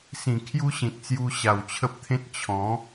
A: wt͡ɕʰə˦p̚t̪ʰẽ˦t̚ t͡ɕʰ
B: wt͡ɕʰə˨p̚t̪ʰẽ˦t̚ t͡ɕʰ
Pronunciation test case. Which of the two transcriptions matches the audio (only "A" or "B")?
A